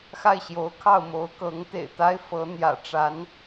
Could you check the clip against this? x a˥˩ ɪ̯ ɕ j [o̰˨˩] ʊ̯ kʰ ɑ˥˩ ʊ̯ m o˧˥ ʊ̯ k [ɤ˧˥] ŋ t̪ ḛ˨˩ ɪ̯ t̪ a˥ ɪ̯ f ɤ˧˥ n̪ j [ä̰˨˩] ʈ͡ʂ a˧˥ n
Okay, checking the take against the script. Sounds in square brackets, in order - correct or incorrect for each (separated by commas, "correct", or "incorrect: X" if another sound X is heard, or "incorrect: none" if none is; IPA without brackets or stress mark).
incorrect: o˧˥, correct, correct